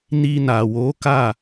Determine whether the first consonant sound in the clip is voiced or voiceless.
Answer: voiced